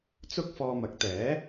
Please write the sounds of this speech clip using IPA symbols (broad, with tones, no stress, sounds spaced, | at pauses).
t͡s ʊ˥ k̚ f ɔː˧ m ɐ˨˥ k̚ t̪ ɛː˨˥